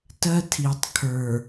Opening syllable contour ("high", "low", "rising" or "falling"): high